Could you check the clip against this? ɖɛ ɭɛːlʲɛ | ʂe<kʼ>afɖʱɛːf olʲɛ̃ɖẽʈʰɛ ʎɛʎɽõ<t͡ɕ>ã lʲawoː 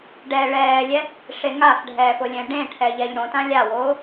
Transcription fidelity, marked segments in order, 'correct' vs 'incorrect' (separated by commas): incorrect, incorrect